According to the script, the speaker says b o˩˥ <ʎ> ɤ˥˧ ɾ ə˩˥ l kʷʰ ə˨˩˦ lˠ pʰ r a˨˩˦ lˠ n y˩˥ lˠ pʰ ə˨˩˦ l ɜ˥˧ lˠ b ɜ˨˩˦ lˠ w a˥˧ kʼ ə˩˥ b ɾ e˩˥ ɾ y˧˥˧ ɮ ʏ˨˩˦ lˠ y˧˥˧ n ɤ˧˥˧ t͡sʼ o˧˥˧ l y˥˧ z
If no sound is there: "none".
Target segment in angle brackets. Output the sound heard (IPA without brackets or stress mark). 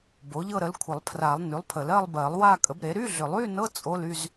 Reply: ʎ